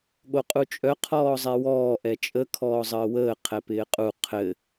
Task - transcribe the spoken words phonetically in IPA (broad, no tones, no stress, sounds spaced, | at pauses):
ɠ o qʼ u t͡ʃʼ œ qʰ ɔː zˤ ɛ w ɔː ʔ ɛ t͡ʃʼ ə kʰ ɔː zˤ əː w əː qʰ ɛ p ɪː qʼ u qʰ ɘ